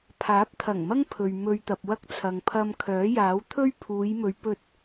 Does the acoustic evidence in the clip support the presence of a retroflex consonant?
no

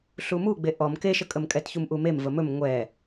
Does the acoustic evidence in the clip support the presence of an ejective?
yes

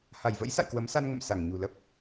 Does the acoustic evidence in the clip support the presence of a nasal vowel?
no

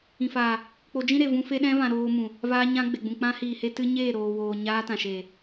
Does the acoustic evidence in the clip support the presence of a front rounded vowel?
no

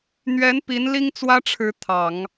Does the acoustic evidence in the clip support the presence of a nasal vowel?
no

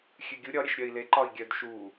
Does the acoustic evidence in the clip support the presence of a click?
yes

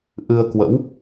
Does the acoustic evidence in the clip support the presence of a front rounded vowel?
no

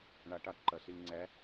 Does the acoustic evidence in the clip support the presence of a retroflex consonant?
yes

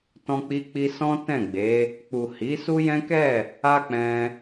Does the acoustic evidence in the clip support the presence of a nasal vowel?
yes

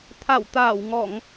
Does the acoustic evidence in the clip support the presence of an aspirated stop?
yes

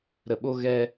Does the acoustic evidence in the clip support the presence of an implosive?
yes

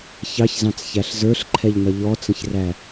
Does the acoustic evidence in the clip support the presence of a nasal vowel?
yes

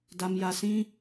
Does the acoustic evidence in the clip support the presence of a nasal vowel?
yes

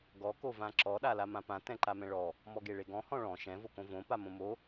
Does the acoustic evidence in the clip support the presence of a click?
yes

